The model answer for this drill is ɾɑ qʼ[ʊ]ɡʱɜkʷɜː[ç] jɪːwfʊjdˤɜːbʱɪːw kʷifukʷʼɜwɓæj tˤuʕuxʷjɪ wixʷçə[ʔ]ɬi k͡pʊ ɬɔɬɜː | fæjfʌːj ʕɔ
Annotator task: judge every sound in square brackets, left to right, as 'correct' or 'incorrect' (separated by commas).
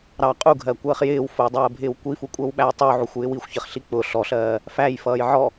incorrect, incorrect, incorrect